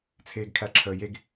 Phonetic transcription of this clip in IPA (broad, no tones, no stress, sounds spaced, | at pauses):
t͡sʰ eː ɡ kʰ æ ǁʰ əː j e ɡ